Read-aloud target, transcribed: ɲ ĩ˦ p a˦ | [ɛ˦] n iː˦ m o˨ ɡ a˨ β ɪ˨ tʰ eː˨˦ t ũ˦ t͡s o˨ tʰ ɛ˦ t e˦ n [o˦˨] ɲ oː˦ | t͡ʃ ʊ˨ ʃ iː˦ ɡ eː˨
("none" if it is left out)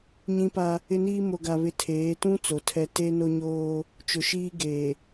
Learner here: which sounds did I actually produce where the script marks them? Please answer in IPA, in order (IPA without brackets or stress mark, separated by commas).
ɪ˦, o˦